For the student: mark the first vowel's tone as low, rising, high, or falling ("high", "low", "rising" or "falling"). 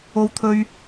high